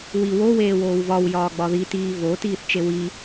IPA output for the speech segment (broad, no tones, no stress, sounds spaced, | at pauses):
w i w o w eː w oː w v ɒ w j ɒː ɡ͡b ɒ ð i t iː v o t iː θ t͡ʃ e w i